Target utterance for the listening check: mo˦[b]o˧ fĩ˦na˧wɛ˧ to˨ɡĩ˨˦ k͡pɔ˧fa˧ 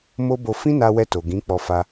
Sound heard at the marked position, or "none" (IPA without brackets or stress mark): b